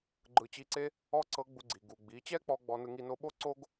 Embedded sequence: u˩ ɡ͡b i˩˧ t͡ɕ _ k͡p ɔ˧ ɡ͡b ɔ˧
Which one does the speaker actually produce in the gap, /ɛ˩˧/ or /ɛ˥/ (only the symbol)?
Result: ɛ˥